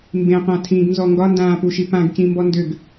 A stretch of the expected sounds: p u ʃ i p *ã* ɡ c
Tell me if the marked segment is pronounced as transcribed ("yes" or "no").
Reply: yes